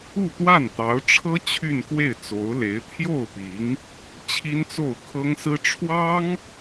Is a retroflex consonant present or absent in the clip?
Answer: present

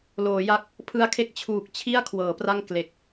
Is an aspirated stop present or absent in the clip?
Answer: present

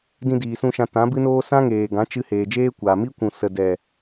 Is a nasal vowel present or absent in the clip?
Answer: present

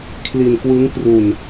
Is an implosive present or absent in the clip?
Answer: absent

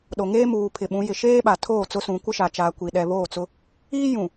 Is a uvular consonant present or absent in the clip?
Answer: absent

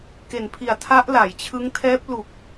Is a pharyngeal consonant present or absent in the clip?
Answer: absent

